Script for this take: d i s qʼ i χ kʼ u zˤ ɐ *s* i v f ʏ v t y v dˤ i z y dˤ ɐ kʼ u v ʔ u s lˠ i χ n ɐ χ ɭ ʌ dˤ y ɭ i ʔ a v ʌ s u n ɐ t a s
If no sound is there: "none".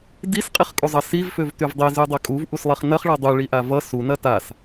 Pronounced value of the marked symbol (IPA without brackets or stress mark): s